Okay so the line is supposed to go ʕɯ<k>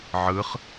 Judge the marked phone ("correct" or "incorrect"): incorrect